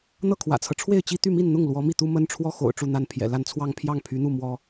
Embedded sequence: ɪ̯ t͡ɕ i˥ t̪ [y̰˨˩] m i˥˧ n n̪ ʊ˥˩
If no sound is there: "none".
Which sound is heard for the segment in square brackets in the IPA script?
y˥˧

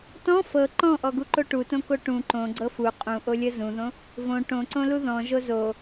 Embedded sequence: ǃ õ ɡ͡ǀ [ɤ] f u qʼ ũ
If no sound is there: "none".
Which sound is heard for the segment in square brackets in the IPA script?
ɤ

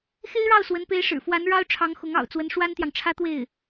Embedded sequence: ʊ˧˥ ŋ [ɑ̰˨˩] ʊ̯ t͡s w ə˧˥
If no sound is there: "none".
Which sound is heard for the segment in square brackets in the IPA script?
ɑ̰˨˩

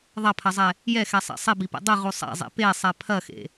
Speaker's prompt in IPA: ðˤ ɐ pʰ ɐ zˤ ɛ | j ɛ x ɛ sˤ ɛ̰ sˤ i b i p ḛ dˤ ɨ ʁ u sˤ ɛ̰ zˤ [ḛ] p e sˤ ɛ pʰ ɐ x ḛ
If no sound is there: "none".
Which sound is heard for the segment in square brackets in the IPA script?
ḛ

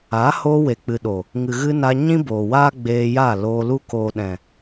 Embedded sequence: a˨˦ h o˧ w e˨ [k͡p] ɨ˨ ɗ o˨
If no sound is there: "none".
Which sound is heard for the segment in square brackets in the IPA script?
k͡p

